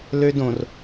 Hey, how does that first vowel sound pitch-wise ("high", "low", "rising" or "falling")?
high